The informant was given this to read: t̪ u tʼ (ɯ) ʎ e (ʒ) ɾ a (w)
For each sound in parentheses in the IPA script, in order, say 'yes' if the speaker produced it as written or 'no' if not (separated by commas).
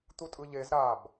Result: yes, no, no